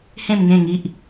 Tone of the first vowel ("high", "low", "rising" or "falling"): falling